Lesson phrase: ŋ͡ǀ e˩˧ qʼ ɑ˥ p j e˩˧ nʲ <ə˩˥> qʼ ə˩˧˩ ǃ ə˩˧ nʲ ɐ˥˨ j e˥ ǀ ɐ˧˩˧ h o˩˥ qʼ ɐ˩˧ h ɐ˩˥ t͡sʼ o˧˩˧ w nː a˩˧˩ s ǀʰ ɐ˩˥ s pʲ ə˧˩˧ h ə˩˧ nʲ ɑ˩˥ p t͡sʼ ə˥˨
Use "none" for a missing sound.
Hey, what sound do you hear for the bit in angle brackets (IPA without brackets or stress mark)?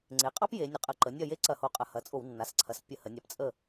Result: ə˩˥